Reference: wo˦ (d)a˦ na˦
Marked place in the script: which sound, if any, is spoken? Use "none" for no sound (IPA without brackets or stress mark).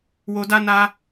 d